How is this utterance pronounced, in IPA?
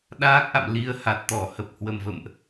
ɗ aː˦˥ k̚ ʔ a̰˧˨ m l i˨˦ ə̯ h a˨˩ t̚ t̪ ɔ˧˩ h ə˨˩ p̚ h w ə˨˩ m v ə̰˧˨ m ʔ

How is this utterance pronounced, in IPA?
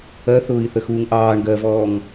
ɜ θ ʊː i̯ θ ə x uː ŋ ʔ ɑː ɳ ɡ ɜ v ɔː ŋ

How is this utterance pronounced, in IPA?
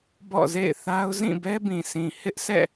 b ɔ̰˦˨ z ḛ˦˨ ɪ̯ θ a˦ ʊ̯ z ĩ˦˨ b ɛ˦ b ĩ˨ s ĩ˨ h ɪ˦ ʔ s ɛ̰˦˨

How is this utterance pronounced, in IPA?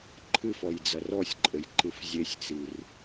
ǃʰ ɨ f ɔ j d͡z ɐ r ɔ sʲ ǃʼ ɘ j ǃ ɨ f zʲ e sʲ t͡s i r

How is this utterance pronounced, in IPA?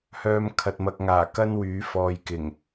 h œː˧ m kʰ ɐ˨ t̚ m ɐ˨ k̚ ŋ aː˨˩ k ɐ˥ n w yː˨˥ f ɔː˨ j k ɪ˨˩ ŋ

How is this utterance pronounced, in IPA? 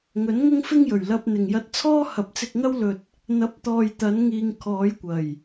ŋ ɵ˨˥ n ŋ ʊ˥ ŋ f ɪ˥ ŋ j ɵ˨˩ ɥ l ɐ˧ p̚ n̪ ɪ˨˩ ŋ j ɐ˧ t̚ t͡sʰ ɔː˥ h ɐ˨˥ p̚ t͡s ɪ˧ k̚ ŋ ɐ˥ w l ɵ˧ t̚ | n̪ ɐ˨˥ p̚ t̪ ɔː˨ j t̪ ɐ˨˧ n ŋ iː˨ ŋ kʰ ɔː˨˧ j kʷ ɐ˨˩ j

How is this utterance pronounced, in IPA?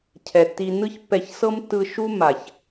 cʰ ɛ˨ tː i˧ n ɯ˦ ç pː ɛ˧ ç s ɤ˦ m tː ɯ˧ ʃ u˦ m a˨ ç

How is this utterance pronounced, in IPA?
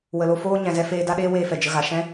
w ə˨ l o˧ f oː˦ ɲ ɛ̃˨ z ɛ˧ f eː˧ d a˦ ɗ eː˦ w eː˧ f ɛ˨ d͡ʒ ə˧ ɣ a˨ ʃ ɛ̃˦

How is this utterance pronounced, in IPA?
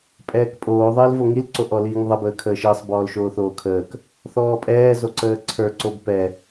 pʼ ɛː k pʼ oː ðˤ əː l v o ŋ i l ǀ o ʔ ɔ l iː ŋ ðˤ ə b əː kʰ əː ʃ əː sˤ b ɔː l ʃ oː θ oː kʰ əː k | θ ɔː pʼ ɛː z o ǀ əː ǀʰ ə˞ ǀ o b p ɛ

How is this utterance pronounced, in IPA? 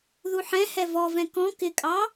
ð u ħ ɛ̃ h ɛ v ɔ v ɛ̃ k ɔ̃ k ɪ kʼ ɑ

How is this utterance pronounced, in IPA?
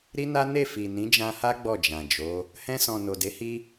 ɾ i˦ n a˦ n e˦˨ f i˨ n ĩ˨˦ d͡ʒ ã˧ h a˦ ɡ͡b ɔ˦˨ d͡ʒ ã˨ d͡ʒ o˨˦ | h ɛ̃˧ s ɔ̃˨ n o˨ d e˨˦ h i˦

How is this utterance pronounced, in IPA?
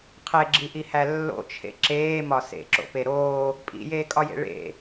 qʰ e ɡ͡ǁ i ʔ i h æ lː o̰ t͡ʃʰ ḛ ǁ eː m ɒ s ḛ ǁ o̰ p e ɾ oː | pʼ ḭ j eː kʼ ɒ j ḛ ɭ ḛ

